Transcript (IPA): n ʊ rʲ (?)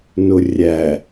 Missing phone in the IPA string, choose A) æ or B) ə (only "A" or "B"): A